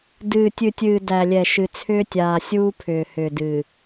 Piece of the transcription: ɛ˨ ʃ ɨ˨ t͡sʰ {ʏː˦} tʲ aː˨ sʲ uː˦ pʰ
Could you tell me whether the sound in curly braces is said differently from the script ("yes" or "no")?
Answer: no